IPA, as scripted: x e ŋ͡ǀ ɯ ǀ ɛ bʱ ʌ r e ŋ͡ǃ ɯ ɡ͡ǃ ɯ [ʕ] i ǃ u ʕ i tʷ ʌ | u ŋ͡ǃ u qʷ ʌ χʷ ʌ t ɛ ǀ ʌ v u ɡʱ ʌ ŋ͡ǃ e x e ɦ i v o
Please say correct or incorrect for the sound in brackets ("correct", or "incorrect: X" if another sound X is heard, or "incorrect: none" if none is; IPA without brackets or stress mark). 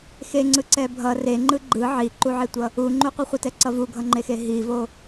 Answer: correct